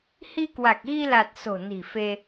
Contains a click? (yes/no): no